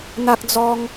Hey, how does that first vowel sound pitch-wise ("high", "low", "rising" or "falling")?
high